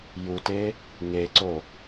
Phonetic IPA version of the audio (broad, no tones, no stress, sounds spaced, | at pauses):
j u t e | ŋ e ǀ o